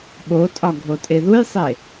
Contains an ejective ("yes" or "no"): yes